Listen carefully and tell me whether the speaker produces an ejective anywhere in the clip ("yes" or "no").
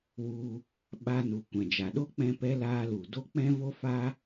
no